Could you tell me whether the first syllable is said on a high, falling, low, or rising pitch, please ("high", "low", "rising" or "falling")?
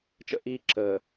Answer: high